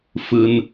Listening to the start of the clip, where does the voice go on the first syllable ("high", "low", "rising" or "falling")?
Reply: low